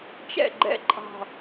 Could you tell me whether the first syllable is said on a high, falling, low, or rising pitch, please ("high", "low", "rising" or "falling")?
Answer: falling